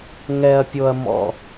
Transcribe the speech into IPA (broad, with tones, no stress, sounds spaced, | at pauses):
ŋ ɛ˨ ɐ̯ pʲ o˨ ɐ̯ m ɔ̰˨